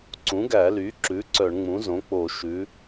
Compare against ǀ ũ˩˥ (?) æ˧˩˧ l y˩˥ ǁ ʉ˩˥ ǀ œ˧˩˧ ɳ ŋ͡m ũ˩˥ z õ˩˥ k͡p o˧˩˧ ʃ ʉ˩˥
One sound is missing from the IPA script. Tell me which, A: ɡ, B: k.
A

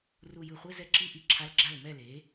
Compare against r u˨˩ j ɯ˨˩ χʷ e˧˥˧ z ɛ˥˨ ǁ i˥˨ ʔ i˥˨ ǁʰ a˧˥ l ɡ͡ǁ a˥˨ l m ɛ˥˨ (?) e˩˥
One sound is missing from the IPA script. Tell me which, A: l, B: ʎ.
A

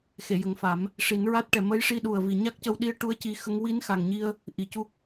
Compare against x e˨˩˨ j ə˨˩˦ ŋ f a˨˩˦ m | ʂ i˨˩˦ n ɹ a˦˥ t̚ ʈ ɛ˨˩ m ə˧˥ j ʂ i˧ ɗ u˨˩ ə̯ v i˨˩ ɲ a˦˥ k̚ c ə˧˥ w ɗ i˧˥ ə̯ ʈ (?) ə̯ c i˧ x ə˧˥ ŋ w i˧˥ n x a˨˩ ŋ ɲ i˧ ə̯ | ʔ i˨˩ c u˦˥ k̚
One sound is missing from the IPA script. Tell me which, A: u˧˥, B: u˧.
A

